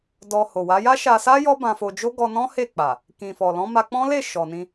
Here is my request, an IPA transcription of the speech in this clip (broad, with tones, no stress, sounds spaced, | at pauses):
d ɔ˧ h o˨ w a˨˦ j a˦ ʃ a˧ s a˦ j ɔ˦ b ã˧ f o˧ d͡ʒ o˦ ɡ ɔ˧ n ɔ̃˦ h e˦˨ k͡p a˨ | k ĩ˨ f ɔ˨ l ɔ̃˨˦ m a˧ k͡p ɔ̃˦ l e˦˨ ʃ ɔ˨ n ĩ˧